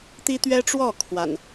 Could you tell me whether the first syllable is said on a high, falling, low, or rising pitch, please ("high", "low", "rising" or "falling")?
high